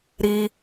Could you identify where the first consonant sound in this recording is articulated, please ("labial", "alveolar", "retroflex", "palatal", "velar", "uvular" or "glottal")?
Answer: alveolar